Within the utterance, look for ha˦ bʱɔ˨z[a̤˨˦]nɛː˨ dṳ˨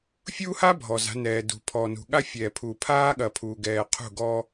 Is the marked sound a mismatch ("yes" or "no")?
no